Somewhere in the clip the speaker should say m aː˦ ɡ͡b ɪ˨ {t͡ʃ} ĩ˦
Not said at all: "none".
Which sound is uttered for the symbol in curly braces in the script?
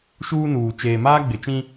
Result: t͡ʃ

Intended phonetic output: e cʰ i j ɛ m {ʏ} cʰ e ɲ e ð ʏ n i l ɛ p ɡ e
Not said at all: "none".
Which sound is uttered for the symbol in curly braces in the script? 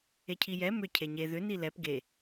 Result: ʏ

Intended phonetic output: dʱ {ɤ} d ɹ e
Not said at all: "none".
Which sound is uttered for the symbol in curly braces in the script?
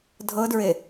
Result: ɤ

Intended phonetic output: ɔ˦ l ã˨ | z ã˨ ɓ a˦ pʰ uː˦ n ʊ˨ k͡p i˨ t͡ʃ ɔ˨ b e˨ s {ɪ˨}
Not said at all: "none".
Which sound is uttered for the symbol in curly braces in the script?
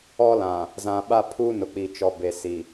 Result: i˨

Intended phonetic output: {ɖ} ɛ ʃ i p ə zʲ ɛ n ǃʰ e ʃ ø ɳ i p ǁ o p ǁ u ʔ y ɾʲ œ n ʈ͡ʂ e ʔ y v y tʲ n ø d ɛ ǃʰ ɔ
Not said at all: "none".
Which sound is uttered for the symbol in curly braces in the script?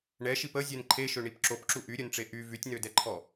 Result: ɳ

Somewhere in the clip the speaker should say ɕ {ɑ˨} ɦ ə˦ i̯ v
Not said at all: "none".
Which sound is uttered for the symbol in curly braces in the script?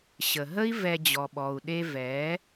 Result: ə˨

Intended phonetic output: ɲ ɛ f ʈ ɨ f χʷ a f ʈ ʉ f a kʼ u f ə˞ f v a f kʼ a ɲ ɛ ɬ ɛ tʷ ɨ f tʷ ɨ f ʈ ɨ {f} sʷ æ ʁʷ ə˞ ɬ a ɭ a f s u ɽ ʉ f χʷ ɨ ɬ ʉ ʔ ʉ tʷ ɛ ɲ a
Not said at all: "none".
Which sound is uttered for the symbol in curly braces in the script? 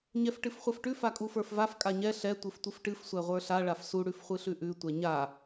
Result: f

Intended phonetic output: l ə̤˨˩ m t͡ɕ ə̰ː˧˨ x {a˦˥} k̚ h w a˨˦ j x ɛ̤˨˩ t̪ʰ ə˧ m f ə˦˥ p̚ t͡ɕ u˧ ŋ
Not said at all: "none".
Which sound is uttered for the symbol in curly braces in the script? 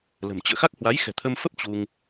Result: a˦˥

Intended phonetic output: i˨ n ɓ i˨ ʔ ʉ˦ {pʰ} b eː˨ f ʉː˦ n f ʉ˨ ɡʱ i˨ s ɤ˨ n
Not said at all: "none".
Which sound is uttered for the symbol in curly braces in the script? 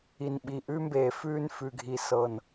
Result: m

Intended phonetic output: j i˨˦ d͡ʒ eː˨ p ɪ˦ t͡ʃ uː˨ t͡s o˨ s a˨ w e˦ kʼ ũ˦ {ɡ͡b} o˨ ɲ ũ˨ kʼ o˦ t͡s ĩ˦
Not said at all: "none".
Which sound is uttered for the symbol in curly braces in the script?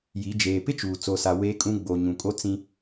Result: ɡ͡b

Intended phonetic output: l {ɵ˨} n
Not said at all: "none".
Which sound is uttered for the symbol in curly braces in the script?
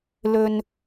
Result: ɵ˥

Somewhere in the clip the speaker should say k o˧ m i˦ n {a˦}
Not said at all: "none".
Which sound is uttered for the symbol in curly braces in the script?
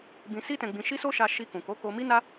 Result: a˦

